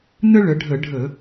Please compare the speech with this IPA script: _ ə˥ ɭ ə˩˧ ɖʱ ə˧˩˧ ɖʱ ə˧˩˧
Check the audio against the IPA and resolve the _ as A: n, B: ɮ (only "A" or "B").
A